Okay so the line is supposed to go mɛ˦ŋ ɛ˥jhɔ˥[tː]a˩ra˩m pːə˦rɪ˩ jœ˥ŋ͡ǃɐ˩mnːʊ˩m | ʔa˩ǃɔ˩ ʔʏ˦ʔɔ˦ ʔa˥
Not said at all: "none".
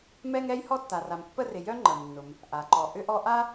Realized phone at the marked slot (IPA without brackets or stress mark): tː